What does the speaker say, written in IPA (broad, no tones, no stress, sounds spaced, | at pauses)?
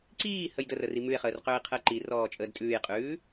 ǀ iː h ə j d ə r ə r i m ʉ e̯ χ əː r q øː e̯ qʰ əː ǃ i r ɔː t͡ʃʼ əː d tʼ ʉː j qʼ ʉː